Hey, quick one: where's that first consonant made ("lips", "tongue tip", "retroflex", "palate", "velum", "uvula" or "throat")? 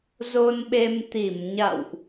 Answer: tongue tip